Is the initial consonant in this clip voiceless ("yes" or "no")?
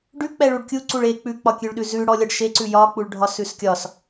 no